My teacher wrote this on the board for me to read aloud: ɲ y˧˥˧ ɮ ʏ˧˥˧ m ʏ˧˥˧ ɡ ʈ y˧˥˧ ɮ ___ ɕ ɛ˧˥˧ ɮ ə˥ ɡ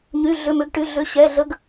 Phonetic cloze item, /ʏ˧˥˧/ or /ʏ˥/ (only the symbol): ʏ˧˥˧